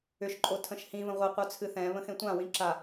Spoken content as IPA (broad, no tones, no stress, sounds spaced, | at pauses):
ʏ ʃ ǃʼ o tʰ ə̃ ʃ h ĩ v ə̃ ʁʷ ɪ qʷ œ t͡sʰ ɨ θ ɛ̃ β ə̃ x ẽ tʷ ã w ĩ ǁ a